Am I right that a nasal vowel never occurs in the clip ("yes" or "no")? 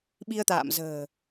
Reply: yes